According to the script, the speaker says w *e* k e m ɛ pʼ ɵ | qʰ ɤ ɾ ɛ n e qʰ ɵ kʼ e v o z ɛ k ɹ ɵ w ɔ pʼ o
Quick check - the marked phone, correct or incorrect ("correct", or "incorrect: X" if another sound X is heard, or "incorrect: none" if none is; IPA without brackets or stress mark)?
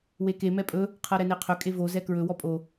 correct